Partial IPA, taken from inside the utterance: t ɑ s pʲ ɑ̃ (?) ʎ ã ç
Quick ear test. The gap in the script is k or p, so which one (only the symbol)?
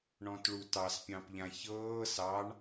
p